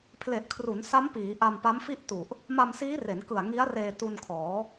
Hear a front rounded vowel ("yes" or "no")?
no